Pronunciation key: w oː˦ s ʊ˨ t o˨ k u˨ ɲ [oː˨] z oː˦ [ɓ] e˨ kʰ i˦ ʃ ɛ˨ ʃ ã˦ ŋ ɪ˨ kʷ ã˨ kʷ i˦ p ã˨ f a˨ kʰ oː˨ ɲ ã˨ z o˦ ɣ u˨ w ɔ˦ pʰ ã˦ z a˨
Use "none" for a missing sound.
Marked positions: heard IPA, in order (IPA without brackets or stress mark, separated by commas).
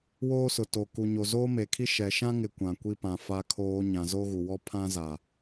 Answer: o˨, m